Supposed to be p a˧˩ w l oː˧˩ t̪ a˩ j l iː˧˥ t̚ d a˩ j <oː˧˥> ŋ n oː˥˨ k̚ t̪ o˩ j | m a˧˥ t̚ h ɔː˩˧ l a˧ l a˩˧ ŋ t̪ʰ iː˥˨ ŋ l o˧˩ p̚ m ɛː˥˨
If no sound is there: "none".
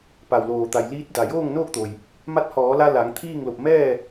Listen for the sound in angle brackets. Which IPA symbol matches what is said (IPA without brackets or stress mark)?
oː˥˨